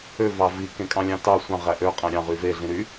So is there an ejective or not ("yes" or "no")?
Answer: yes